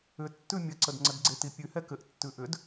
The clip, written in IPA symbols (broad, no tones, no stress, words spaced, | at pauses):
ʏ tːʉmʲəǀəd ŋ͡ǀədɡ͡ǀeti pʲʉhɛ kɘʔtːʉ ʔʏd